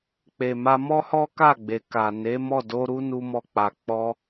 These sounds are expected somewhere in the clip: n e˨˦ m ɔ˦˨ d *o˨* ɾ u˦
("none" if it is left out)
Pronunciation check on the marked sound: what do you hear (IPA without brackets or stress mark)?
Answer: o˧